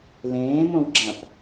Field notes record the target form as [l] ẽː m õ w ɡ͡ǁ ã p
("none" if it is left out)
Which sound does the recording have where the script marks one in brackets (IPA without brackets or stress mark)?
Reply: l